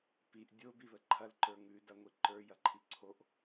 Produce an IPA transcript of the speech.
p i ʔ dʲ o b i β ə ǃʰ ɐ l ǃ ə˞ ŋ ʉ d ɐ ŋʷ i ǃ ə˞ j ɐ ǃʰ i ǀʰ o ʔ

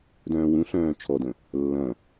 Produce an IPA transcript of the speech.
d œ̃ː w ũ ɬ œ̃ː t͡ʃʰ ɔ d ə̃ | lː ɐ̃

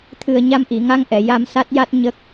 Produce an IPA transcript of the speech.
t̪ʰ ɨ˨˩ ə̯ ɲ a˧ m ʔ i˨˩˨ ŋ a˧ ŋ ʔ ɛ˨˩˨ j a˧ m s a˦˥ t̚ j a˦˥ t̚ ɲ ə˦˥ k̚

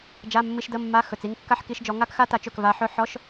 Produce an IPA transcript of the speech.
d͡ʒ a˧˥˧ mː i˧˥˧ ʃ d ə˧˥˧ mː a˧˥˧ x ɵ˩˧˩ t͡s i˥˧ ŋ kː a˥˧ ħ k i˧˥˧ ʃ d͡ʒ ɔ˨˦ ŋ a˥ k x a˥ t a˨˦ t͡ʃ ɵ˩˧˩ k v a˨˦ ħ ɵ˧˥˧ ħ ɔ˧˥˧ ʃ

